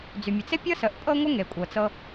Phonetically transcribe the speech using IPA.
d͡zy˩mʲə˩ t͡se˥pʲɤ˥ sə˨ʔ pʼɤ˦ŋʷə˦ ŋe˩kʷʼɤ˩t͡sɤ˦

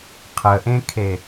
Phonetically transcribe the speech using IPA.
qʰəʔẽkʰe

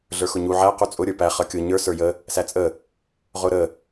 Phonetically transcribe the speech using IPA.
ɮə˞xʊɲu ʕæ qut͡sʼʊ ɾʲə˞pæ χʌkʲʊ ɲə˞ sə˞jə | sæt͡sʼə | ʁʊɾə

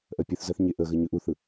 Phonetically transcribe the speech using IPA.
ʔɜpʲɵθzɜθ ɲeʔə ɣəɲɵʔ uθɯ

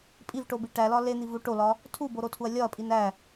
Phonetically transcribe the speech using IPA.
pʼivʈobi ʈælɒ len̪ivu ʈolɒ | tʰuboɾotʰuɐ̯ lʲɒɐ̯pʼin æ

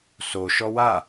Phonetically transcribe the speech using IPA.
so ʃɔwa

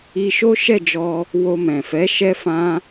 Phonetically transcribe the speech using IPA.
i˧ʃo˦ʃɛ˦˨d͡ʒɔ˧ | wo˧mɛ̃˨fɛ˨˦ ʃɛ˦fã˦

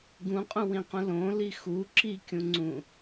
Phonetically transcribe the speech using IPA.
ɡũqʼũwĩqũ lõli xu ǁikʲũŋ͡ǀũ

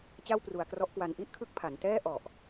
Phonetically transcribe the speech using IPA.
t͡ɕa˥˩wpru˧a̯krɔ˦˥ʔkwa˧n ʔi˥˩ʔkʰɯ˦˥k̚ pʰa˩˦ntɛː˥˩ ʔɔ˨˩ʔ

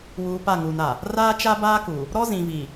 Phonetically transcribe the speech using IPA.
wuː˨ pa˦˨ŋuː˨na˨ | raː˦t͡ʃa˦ baː˦ku˨ | ɾɔ˦zĩ˨vi˨

